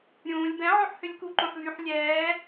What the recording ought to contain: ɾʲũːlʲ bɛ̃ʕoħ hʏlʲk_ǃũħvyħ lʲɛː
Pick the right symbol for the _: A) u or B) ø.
A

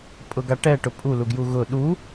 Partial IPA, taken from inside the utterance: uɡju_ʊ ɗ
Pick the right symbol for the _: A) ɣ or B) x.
A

